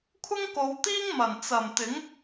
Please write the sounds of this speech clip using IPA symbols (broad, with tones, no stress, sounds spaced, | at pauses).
kʷʰ ɪ˥ ŋ k o˨˧ w t̪ iː˥ ŋ m ɐ˨˩ n t͡s ɐ˨˩ m t̪ ɪ˨˥ ŋ